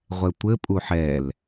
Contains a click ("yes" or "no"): no